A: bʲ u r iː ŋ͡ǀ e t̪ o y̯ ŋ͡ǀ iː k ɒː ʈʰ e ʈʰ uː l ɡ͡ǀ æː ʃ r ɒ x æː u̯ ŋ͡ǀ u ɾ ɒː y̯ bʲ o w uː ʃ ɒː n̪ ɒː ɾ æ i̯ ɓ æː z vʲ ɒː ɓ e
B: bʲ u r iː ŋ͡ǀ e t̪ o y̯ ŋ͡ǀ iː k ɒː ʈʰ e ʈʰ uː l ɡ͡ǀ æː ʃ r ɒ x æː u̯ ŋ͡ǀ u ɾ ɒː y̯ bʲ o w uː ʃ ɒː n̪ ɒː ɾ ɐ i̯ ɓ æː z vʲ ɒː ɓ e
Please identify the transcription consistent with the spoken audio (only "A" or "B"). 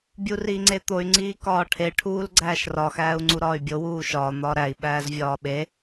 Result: A